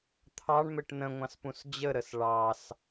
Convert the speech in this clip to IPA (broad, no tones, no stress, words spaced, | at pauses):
t̪ʰɑɳmɘʈ nə̃ŋʷɑ̃spũs d͡ʑəɾəs ɭɑs